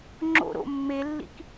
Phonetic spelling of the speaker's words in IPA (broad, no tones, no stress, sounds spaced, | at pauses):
ŋ͡ǁ o̰ ɾ o̰ mː e lː ḭ k